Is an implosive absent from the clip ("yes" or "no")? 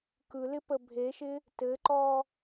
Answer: yes